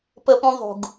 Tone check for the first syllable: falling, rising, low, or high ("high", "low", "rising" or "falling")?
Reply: high